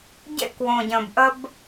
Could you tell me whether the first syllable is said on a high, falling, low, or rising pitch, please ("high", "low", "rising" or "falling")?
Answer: high